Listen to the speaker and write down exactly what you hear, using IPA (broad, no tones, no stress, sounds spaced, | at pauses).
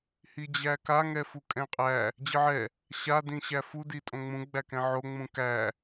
h i d͡ʑ æ k a ŋ ɛ f u kʼ ɛ̃ qʼ æ | d͡ʑ ɨ ʕ ɛ | ɕ a d ĩ ɕ æ f u d i tʼ õ ŋ͡m ũ ɡ͡b æ k ɛ̃ ʕ o ŋ͡m ũ k æ